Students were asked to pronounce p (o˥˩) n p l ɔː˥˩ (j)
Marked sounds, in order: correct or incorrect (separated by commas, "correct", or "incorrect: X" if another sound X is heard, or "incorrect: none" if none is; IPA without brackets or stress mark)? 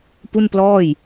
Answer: incorrect: u˥˩, correct